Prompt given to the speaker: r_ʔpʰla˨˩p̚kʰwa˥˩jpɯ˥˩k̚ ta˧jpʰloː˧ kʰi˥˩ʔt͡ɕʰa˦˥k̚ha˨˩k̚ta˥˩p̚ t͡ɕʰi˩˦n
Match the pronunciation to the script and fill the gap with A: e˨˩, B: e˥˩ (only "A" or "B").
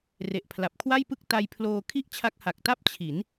A